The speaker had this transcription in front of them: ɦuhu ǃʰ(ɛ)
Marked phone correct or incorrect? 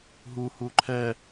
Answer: correct